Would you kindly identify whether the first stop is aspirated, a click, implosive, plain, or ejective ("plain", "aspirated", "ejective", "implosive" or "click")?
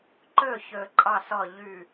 click